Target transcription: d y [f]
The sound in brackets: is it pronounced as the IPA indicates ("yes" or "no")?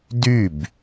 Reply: no